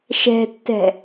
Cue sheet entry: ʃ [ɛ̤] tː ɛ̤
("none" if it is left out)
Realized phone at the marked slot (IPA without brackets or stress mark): ɛ̤